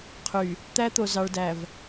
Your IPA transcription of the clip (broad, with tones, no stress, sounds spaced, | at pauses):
qʰ y˨ | t̪ æ˦ t̪ o˨ z ɑ˨ ɭ d æ˨ v